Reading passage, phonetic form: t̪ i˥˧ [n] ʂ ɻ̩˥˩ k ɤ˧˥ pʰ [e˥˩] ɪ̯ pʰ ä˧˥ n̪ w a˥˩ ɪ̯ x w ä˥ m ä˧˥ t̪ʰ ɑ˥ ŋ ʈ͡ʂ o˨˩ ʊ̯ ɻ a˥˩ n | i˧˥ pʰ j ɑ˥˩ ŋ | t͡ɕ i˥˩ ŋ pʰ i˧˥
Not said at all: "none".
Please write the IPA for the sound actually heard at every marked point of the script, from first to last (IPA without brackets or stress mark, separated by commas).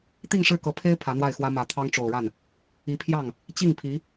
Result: ŋ, e˥